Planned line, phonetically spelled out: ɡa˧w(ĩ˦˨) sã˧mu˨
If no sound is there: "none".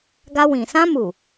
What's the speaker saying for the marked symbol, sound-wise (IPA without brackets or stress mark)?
ĩ˨